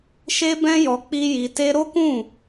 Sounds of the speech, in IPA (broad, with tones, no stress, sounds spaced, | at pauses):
ʃ e˦ b ɛ̃˦ j ɔ˧ k͡p i˦ j i˧ t e˦ ɾ o˦ k ũ˦˨